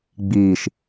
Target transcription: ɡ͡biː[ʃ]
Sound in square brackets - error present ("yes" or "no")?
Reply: no